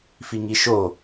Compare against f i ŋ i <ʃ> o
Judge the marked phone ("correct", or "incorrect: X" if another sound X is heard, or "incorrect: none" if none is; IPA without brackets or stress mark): correct